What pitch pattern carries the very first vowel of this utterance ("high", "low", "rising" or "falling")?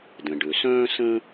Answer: low